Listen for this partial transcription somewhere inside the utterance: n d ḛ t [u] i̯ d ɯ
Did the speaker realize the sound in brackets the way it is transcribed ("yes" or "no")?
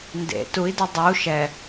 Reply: yes